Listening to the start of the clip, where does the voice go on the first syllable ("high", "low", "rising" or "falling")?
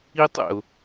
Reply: high